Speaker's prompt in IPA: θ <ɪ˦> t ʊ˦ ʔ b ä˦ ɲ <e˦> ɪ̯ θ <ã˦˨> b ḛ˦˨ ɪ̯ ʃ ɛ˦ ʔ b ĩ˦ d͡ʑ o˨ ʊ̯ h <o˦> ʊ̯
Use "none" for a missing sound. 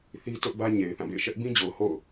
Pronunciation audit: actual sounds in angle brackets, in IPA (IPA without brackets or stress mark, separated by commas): i˦, e˨, ã˦˨, o̰˦˨